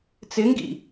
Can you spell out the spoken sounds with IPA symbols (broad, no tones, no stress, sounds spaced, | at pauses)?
t͡s ɪ ŋ ɡ ḭ